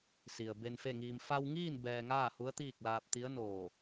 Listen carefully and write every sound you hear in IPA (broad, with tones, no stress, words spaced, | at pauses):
si˩ə̯ be˧nfe˥˨ŋiː˧m fa˧wŋiː˥˨n bɛː˧ŋaː˥˨hu˧˥ə̯t̪iː˥˨k̚ laː˧p̚t̪i˧˥ə̯noː˧˩